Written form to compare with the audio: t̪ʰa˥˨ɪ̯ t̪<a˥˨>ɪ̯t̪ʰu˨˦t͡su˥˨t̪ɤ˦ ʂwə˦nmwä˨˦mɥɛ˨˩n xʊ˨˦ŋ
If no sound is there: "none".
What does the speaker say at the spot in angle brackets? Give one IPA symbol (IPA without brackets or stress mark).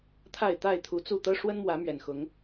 a˥˨